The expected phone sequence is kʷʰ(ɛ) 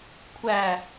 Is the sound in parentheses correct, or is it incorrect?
incorrect